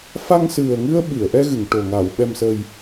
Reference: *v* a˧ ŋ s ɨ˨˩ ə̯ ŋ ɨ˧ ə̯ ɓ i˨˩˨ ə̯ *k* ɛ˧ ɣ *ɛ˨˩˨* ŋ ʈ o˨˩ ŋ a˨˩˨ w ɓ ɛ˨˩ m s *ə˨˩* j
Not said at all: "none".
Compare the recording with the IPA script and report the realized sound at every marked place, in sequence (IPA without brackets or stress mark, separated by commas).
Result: f, ʔ, ɨ˨˩˨, ə˨˩